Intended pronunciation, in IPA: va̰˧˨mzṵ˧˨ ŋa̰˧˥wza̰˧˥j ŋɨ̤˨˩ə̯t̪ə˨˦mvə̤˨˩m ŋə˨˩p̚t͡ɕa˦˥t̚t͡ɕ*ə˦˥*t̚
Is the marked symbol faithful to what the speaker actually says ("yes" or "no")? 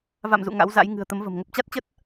yes